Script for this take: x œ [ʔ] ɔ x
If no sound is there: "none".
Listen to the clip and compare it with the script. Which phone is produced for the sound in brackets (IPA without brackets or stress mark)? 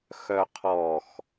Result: qʰ